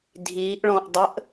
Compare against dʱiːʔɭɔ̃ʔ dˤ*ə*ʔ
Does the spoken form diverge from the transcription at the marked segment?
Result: no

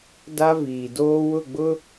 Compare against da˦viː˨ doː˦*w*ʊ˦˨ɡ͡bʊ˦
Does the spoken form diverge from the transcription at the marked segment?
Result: no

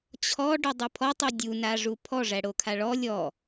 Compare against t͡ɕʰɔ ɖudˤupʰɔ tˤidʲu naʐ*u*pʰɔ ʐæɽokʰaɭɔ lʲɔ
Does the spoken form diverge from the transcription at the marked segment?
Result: no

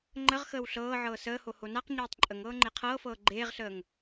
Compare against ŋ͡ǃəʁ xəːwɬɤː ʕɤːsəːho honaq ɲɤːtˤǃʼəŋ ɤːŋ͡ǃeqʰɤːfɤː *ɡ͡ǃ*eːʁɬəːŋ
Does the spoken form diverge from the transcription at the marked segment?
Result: no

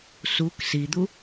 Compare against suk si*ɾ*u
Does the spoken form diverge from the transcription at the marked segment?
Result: yes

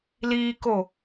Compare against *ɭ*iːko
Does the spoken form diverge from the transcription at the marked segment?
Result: yes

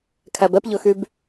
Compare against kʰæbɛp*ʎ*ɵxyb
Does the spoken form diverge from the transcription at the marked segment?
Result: no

